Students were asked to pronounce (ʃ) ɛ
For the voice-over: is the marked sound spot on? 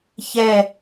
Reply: no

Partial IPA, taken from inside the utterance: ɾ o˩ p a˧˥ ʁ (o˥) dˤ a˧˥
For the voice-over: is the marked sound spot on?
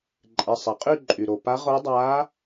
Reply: no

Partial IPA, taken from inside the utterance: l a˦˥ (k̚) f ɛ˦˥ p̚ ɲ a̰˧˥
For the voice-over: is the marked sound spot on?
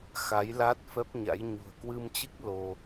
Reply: no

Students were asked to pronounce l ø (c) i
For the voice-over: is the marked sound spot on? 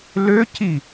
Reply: yes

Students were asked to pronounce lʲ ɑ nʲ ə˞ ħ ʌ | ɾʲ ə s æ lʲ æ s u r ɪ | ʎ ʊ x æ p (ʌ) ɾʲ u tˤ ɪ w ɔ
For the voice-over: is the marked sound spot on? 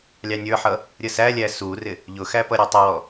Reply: yes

